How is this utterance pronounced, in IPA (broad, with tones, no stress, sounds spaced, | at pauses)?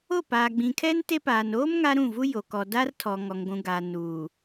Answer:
o˦˨ p aː˨ ɡ͡b ĩ˨ kʰ ɛ˦ n t e˦ p aː˨ n oː˦ m ŋ a˦ ɾ ũ˦˨ v u˦ j o˨ k ɔ˨ d a˦ r tʰ ɔ˨ ŋ ɔ˨ ŋ ɡʷ ũ˨ ɡ a˨ n uː˨